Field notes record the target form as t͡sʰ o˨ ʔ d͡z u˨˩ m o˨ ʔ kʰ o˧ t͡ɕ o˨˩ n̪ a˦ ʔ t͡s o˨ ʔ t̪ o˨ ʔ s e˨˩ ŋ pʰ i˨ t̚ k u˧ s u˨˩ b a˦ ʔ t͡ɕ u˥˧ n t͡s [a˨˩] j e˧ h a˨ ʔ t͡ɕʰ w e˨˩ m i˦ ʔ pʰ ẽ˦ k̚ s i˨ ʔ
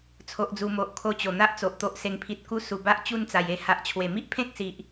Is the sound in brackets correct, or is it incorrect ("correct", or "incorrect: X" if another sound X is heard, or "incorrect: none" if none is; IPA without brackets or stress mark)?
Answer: correct